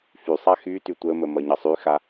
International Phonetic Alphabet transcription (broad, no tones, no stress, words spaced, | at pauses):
fysˤa xyty tʷəmə mʌɲʌsˤyxa